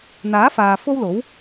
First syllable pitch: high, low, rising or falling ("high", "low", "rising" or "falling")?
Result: rising